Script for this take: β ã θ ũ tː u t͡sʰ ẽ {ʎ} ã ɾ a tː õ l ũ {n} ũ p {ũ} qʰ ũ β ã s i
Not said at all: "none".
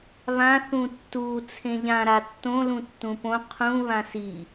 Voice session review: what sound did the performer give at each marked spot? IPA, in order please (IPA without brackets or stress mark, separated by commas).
ʎ, tː, õ